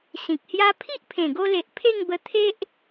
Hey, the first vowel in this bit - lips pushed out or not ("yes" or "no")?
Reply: no